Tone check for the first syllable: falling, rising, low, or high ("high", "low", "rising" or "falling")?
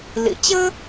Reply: low